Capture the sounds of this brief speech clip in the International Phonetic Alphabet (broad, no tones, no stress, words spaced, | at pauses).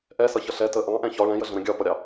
ʔɛsʌçʌ ɬɛ tə ʔɑ̃ʔɛ̃ çɒ ɭɛ̃jəɮə̃ɾə̃ ɡʲɒpʌɾʲɑ